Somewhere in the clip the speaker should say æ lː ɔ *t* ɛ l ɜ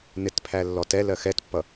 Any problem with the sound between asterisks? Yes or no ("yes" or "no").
no